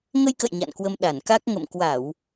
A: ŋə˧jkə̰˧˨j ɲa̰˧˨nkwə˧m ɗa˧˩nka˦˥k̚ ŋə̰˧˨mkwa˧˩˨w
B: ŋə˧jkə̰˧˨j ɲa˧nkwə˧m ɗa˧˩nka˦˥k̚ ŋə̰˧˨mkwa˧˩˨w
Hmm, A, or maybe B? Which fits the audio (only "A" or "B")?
A